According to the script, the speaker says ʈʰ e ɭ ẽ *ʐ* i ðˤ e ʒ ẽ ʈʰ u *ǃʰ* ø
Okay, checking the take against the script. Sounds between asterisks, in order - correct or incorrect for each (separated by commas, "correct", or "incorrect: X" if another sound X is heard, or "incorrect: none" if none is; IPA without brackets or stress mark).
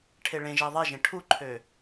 incorrect: ʒ, correct